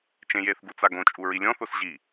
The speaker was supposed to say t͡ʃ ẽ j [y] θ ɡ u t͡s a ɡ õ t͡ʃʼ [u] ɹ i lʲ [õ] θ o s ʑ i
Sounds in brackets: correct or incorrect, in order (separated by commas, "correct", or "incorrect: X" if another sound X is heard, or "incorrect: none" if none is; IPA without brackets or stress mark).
incorrect: e, correct, incorrect: ɔ̃